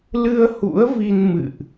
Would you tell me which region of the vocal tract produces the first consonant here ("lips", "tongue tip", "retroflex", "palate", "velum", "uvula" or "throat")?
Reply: tongue tip